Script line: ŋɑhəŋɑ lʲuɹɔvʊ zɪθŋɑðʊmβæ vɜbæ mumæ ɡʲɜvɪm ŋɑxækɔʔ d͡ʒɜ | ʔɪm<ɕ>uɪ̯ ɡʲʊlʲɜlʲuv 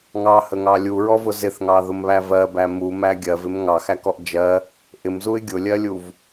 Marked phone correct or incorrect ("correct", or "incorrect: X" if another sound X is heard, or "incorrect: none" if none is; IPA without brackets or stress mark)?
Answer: incorrect: z